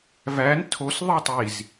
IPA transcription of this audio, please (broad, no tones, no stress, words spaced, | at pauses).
væn tʰos ðˤitˤiz